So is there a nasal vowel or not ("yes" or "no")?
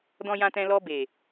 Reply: yes